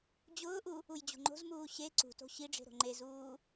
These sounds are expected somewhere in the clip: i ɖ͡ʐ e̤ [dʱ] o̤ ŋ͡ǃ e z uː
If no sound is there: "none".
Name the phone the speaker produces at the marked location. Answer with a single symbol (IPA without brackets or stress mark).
ɾ